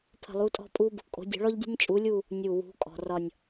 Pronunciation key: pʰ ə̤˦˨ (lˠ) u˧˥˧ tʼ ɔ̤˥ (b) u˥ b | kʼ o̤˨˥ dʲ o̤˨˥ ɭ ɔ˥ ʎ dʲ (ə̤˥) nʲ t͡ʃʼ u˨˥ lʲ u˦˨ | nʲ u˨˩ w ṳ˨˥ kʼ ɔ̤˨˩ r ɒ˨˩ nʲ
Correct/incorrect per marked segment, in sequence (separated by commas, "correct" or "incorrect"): correct, incorrect, correct